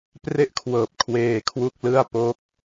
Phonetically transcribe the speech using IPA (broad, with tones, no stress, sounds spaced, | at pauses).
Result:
p r e˥˩ ʔ kʰ w ɤː˨˩ p̚ kʰ w eː˧ kʰ w u˥˩ k̚ l ɯ˥˩ a̯ p o˦˥ k̚